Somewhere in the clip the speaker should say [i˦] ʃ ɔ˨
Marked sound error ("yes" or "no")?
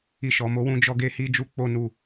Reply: yes